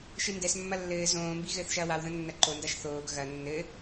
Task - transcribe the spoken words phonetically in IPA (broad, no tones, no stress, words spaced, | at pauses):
ʃɨndɛsmːɐ lːɘː zõːmbi ɣɘːθʃɐːwawðɐ̃ nːɐǃondaʃ θoːɡ ɣɐ nːɘ